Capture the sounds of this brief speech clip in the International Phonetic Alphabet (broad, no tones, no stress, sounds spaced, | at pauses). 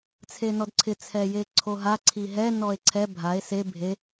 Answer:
t͡sʰ e n ɔ d ǀʰ ɪ t͡sʰ ɛ j e ǀʰ o ɦ a ǀʰ i ɦ ɛ n ɔ e̯ ǀʰ ɛ bʱ a e̯ s e bʱ e